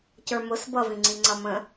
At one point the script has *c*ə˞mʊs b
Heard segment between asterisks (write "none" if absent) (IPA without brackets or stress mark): c